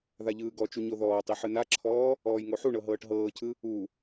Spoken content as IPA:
ðaʎɯːɡɔt͡ʃu ɲoðɔːtˤi ħɯnaǁʰɔː | ɔːjŋoħuɳɤ ɦɤːʈɦɤːcʰɯ | u

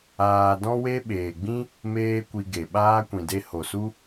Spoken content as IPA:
aː˧ dɔ̃˦we˦ɓeː˨ɡ͡bĩ˦ | meː˦kʷi˧ɡe˨ɓaː˦ kʷĩ˨de˧ ho˨su˦

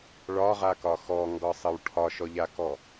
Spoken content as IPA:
ɭɒʁakɒ xɔŋɡɒsˤəw ʈʰɒʃɔʎakɔ

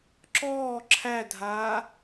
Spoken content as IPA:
ǁɔː ǁʰædʱaː

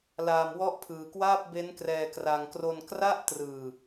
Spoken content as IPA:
laː˧mwɔ˦˥ʔpʰɯː˧kwaː˥˩p̚ be˦˥nkrɛː˧kra˧ŋ kro˧nkra˥˩ʔtrɯː˧

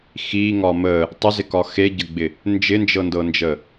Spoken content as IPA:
xiŋɒ mə | tˤɪzɪkɒ xeɟəɡ͡bɪ | nd͡ʒɪnd͡ʒɤndɤnd͡ʒə

